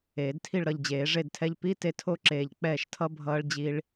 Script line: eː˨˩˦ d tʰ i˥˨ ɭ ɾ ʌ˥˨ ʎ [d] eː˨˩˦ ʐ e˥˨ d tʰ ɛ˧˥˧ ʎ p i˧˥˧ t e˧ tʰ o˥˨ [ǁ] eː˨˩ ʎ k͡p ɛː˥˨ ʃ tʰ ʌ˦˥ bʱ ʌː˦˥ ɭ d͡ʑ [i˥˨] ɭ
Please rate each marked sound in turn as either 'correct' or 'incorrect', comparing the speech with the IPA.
incorrect, correct, incorrect

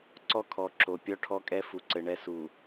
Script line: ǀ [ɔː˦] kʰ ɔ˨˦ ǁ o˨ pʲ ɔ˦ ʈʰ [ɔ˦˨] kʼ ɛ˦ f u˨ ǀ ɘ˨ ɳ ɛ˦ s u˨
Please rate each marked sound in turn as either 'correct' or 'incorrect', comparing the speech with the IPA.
incorrect, incorrect

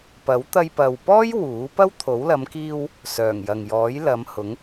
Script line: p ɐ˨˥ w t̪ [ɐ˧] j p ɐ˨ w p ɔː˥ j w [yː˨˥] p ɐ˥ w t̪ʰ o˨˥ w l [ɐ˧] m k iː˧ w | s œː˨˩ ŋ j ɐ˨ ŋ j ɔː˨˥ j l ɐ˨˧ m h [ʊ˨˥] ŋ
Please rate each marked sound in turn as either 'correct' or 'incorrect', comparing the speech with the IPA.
correct, incorrect, incorrect, correct

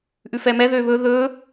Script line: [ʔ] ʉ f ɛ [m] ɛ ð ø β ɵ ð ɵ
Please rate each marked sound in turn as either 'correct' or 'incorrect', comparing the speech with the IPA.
correct, correct

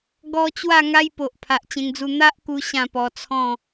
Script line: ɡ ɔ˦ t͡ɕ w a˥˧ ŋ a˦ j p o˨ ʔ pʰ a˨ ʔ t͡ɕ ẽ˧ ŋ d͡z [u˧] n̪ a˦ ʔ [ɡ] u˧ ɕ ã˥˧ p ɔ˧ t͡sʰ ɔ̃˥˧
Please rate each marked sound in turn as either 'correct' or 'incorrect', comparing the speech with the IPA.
correct, incorrect

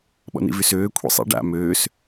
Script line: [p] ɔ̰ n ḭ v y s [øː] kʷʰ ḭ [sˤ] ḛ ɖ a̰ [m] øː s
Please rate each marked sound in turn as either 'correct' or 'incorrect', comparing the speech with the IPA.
incorrect, correct, correct, correct

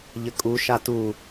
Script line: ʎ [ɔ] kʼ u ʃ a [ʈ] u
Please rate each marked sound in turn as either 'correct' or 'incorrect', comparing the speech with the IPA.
incorrect, incorrect

